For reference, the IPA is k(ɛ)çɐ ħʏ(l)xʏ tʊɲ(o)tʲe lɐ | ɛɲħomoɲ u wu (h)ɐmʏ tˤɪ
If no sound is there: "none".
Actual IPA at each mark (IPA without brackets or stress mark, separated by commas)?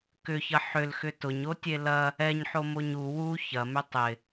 ʏ, l, o, ç